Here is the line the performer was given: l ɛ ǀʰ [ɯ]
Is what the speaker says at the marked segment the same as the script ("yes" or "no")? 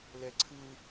yes